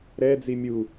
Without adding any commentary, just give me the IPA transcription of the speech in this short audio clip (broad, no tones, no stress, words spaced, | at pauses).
ɾɛd͡zi mʲu